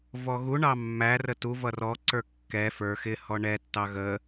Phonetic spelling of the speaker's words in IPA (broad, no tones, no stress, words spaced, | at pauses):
vɔɣuɳɑ mːærə tu vʌrɔǀə˞ kːɛ fə˞ xɪ hɔɳɛtːɑ ɣə